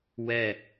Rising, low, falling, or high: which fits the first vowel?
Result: falling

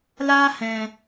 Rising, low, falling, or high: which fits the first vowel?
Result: high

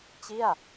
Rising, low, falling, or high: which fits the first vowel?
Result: falling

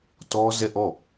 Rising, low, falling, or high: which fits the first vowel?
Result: high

